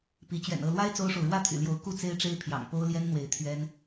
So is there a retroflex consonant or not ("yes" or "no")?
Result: yes